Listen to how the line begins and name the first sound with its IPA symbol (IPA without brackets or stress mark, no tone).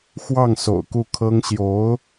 x